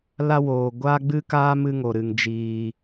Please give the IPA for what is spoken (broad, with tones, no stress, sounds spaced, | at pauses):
l a˦ w oː˨ ɡʷ aː˦ ɡ͡b ɨ˦ k aː˦ m ɨ˦ ŋ o˨ ɾ ɨ˨ ŋ d͡ʒ iː˨